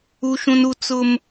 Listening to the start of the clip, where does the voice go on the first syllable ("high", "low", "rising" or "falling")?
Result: high